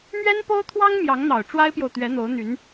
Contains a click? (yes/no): no